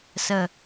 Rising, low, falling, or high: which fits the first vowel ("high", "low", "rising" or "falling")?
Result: low